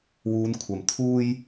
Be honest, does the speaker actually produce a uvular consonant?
no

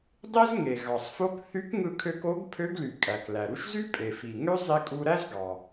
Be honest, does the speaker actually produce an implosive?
no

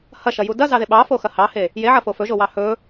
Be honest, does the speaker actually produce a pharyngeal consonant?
yes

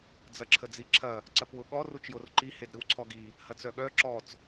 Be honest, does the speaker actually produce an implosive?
yes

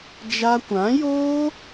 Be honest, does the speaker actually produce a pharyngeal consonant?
no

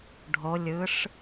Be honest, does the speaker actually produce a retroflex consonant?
yes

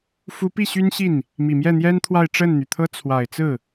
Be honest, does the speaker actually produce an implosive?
no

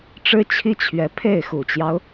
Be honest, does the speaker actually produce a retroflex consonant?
yes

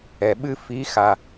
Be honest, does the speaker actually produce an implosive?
yes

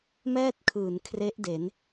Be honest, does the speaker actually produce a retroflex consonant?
no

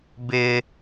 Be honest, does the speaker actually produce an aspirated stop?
no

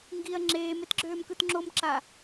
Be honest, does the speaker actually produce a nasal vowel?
no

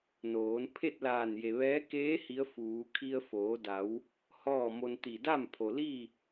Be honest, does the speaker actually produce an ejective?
no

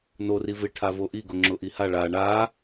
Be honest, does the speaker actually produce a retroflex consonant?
yes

